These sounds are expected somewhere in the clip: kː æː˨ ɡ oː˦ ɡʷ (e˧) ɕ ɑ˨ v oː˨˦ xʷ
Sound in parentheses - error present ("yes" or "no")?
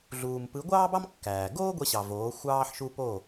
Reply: no